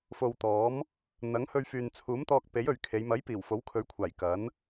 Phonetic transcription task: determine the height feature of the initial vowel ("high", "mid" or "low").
mid